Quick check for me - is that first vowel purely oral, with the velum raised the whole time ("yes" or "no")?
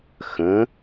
no